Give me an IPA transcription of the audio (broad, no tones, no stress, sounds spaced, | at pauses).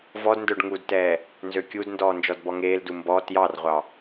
v ɔ d n d œ ɖ ŋ u d t ɛː | n z ø kʲ u d n d ɔː n d͡ʒ ɔ d b ɔ ŋ eː l d u m b ɔ t j ɑ r ʁʷ ɑ